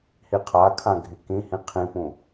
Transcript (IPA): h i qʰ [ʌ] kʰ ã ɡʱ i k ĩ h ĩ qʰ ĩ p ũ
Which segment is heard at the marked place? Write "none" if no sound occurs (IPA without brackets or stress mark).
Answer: a